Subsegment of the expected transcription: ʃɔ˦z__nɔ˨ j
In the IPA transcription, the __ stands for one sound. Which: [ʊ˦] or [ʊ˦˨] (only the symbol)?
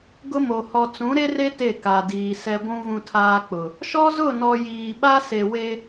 ʊ˦˨